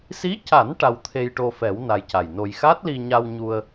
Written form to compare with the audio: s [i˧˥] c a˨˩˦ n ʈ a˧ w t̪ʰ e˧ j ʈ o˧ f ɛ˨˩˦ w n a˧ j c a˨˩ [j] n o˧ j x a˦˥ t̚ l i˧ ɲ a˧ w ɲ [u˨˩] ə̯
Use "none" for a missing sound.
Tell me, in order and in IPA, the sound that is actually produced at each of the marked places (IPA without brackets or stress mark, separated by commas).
i˧˥, j, u˧